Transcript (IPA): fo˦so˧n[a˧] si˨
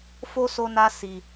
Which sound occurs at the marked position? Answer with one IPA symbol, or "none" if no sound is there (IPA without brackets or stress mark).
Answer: a˧